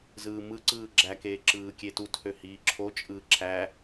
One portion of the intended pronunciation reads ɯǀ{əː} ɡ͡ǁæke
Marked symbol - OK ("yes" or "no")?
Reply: no